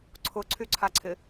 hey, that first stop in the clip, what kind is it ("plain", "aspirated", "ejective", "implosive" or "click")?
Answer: click